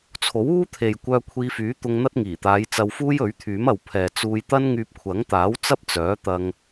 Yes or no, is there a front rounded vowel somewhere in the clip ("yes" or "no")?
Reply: yes